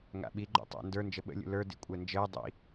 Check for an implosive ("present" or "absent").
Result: present